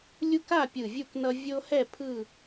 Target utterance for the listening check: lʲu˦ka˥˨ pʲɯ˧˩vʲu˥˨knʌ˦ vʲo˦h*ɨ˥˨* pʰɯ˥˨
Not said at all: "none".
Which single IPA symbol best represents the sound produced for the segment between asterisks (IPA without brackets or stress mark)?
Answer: ɛ˥˨